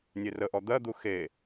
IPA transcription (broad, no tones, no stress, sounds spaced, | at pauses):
nʲ e r ə ʔ ɔ d̪ ɜ d̪ u x e